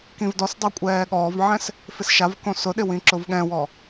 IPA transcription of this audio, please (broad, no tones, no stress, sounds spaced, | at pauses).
k ĩ v d ɔ s dˤ u kʷʼ ɛː ɠ ɔː v ʕ ɛ̃ s | f ɪ s ʃ a v k õ s ʊ ɗ ɪ w ĩ ǁ ʊ v ɠ ɛ̃ w ɔ